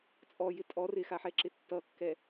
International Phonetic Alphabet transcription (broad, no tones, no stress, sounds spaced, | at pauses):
t͡sʼ ɔ j ɪ tʼ ɔ r ɪ x a ħ ɛ ǁ ɪ tː ʌ kː ɛ